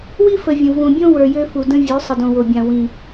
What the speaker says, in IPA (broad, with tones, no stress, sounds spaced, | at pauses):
w i˦ f ə˨ vʲ ə̃˨ v ũ˨ bʲ õ˦ w ə˞˨ j ø˦ f u˨ d ə̃˦ vʲ ø˨˦ sˤ ə˨ d õ˨ w o˨ bʲ ã˨ w ĩ˦